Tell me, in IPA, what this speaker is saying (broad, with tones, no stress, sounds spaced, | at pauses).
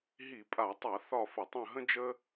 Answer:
ɦ i˧˩˧ pʼ a˧˩˧ tˤ a˧˩˧ θ ɒ˦˨ f ə˧˩˧ tˤ ə̃˦˨ ɦ ə̃˥ d͡ʒ ə˥